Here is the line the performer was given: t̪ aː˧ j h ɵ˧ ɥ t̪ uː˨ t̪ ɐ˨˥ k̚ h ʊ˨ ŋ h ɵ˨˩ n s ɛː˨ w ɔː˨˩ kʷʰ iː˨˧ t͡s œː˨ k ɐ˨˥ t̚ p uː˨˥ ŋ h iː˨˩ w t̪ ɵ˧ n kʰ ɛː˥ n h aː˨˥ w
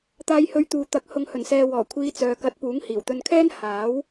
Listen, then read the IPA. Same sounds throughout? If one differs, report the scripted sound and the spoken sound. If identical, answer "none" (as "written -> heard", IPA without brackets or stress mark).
none